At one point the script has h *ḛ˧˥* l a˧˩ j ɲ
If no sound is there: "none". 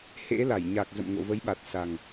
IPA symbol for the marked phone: ḛ˧˥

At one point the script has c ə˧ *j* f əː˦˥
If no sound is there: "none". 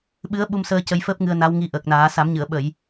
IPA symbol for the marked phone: j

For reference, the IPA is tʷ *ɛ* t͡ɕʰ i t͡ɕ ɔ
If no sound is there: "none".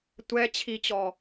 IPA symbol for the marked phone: ɛ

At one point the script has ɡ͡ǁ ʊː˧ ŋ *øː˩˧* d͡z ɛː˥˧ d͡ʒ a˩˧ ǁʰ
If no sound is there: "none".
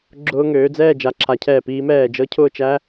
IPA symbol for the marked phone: øː˩˧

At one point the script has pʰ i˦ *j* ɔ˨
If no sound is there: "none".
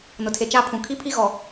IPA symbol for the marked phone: ɣ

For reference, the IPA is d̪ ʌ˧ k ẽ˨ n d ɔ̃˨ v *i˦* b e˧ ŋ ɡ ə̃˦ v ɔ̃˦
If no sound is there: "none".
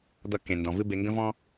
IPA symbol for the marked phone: ɨ˦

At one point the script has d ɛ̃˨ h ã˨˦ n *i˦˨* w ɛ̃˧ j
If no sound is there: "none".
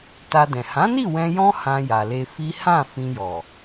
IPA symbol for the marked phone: i˦˨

